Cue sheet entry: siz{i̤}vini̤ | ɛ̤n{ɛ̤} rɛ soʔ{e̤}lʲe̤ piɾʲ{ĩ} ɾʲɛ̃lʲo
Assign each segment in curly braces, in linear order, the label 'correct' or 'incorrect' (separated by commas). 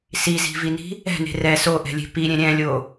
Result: correct, incorrect, incorrect, incorrect